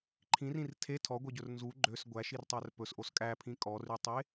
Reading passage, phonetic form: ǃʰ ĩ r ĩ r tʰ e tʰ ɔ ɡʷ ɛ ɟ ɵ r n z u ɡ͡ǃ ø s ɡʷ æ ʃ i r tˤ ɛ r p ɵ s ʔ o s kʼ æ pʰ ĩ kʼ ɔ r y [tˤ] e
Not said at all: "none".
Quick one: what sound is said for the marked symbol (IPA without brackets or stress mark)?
tˤ